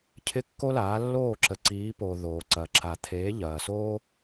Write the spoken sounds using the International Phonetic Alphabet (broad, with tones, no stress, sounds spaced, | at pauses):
cʰ ɪ˦ kː o˦ l aː˨˦ lː oː˦˨ ǁ ə˨ ǀ iː˨˦ p oː˨ ð oː˨ ǀ ɐː˨ ǁ a˨ t̪ʰ eː˨˦ ʎ ɐː˨ s oː˦